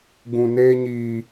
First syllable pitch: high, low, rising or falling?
low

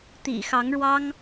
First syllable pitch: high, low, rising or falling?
low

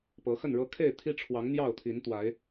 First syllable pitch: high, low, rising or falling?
rising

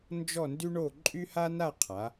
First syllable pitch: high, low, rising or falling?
falling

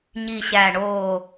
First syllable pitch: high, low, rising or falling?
low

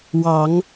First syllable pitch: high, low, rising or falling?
rising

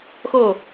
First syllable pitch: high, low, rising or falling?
falling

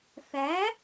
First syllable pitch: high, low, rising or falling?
rising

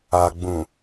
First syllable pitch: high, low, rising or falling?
low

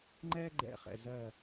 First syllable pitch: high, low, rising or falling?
high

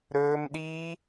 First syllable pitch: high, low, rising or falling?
high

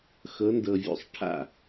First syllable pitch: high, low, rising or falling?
rising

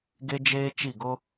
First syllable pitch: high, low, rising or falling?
high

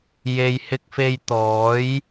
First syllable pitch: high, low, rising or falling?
low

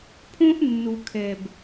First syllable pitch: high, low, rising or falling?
high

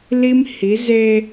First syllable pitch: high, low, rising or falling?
high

